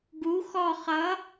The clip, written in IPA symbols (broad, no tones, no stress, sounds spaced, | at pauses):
ɡ u x ɔ χ ʌ